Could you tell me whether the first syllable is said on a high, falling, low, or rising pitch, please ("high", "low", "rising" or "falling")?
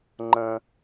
high